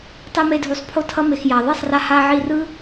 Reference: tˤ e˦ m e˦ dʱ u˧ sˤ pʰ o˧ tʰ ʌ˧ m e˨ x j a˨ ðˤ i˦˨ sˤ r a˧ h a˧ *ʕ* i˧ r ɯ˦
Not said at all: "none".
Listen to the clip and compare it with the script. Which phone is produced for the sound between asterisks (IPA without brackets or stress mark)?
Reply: ʕ